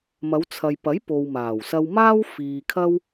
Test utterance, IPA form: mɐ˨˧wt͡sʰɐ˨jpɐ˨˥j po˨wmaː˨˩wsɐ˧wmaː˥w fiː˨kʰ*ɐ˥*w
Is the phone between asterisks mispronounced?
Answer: no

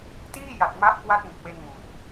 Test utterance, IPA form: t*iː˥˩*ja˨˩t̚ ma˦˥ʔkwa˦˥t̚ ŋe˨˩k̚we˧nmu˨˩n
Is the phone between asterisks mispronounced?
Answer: no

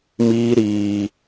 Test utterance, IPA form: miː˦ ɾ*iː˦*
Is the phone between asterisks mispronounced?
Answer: no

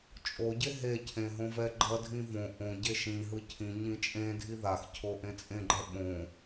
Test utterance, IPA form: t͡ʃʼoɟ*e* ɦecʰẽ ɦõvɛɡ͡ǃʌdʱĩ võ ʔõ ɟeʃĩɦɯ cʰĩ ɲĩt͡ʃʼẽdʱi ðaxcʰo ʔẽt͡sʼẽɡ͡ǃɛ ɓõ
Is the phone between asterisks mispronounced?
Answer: no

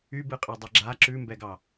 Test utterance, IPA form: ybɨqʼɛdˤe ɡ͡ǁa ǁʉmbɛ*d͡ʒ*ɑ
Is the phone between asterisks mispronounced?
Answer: yes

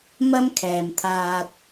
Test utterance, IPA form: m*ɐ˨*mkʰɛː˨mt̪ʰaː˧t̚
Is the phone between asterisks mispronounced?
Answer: yes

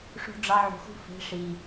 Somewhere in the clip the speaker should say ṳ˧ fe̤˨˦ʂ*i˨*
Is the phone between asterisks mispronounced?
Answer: no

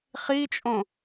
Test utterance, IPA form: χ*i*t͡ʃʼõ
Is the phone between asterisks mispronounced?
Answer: no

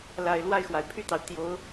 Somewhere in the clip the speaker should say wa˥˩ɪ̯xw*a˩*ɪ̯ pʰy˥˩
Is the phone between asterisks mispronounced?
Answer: no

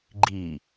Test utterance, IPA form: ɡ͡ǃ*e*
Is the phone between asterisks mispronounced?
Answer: yes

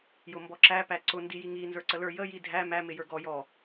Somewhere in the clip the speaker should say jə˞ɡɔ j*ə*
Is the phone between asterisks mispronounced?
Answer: yes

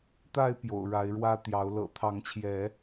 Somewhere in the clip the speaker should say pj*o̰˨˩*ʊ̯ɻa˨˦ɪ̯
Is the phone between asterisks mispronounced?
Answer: no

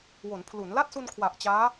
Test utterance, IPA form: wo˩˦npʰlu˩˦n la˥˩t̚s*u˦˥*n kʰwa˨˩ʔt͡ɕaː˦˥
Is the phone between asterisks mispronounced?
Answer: yes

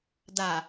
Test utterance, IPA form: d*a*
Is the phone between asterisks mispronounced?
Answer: no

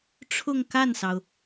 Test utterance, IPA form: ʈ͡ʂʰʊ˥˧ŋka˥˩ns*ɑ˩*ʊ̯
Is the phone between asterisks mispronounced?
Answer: no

